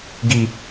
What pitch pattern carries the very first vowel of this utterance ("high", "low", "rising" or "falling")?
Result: high